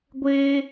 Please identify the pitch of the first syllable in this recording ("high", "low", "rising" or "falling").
high